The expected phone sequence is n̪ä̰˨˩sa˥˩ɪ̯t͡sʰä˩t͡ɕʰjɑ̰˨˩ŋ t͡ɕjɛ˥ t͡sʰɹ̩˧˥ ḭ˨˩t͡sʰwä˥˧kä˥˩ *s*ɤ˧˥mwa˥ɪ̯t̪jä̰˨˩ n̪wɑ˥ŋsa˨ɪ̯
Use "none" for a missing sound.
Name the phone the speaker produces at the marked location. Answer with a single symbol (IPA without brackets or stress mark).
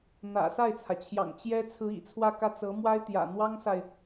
t͡s